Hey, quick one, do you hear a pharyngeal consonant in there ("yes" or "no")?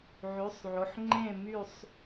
yes